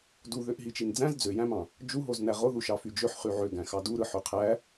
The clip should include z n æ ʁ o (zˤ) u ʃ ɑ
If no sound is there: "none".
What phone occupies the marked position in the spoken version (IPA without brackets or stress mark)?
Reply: ð